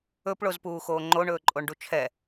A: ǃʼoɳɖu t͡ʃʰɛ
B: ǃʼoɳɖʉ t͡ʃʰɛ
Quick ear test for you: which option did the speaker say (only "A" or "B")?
A